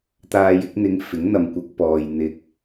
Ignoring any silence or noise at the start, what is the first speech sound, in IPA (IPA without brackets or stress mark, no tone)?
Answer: t̪